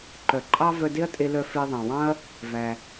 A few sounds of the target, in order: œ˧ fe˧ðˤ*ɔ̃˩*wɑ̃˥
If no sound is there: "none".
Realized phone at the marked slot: ɑ̃˩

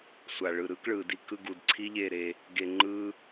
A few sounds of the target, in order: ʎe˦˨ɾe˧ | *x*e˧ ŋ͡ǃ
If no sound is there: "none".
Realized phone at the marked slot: ɡ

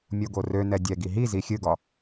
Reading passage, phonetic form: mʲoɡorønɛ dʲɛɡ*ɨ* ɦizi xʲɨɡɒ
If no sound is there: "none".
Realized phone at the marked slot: i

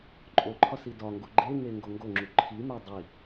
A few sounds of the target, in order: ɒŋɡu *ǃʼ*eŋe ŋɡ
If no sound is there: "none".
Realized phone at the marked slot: ɡ͡ǃ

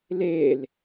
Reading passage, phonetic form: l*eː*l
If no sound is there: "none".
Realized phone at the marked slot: eː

